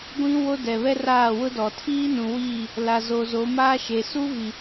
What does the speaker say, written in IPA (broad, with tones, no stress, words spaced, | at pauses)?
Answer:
ɡʷĩ˦ wo˦dɛ˨βɛ˦ raː˦˨wʊ˦dɔ˨ tʰiː˦nũ˨wiː˦˨ | la˨zo˨ zo˨˦ maː˦ʃe˨ su˦vi˨